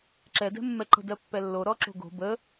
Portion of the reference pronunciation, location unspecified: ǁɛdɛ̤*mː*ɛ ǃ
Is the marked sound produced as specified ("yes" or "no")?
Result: yes